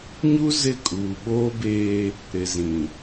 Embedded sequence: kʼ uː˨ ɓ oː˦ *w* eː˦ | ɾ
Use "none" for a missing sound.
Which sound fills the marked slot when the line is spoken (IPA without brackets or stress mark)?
b